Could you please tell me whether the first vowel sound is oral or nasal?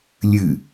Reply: oral